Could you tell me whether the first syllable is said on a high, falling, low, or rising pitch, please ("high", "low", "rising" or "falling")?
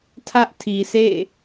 high